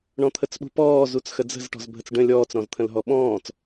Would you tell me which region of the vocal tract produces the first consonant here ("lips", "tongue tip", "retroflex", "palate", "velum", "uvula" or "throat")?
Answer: retroflex